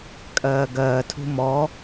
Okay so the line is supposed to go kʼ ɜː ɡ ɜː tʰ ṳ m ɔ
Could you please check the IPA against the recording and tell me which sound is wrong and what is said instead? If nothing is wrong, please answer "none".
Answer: none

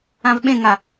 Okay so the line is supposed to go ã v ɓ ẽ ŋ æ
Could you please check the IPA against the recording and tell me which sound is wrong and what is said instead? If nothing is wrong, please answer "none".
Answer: æ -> a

